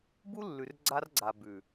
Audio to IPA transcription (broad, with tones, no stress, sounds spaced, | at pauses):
b u˦ lː ʉ˨ r ɡ͡ǀ a˦ r ɡ͡ǀ a˨ b ʉ˨